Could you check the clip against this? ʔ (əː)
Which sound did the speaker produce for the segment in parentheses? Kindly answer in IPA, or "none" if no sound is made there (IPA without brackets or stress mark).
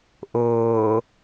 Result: ʊː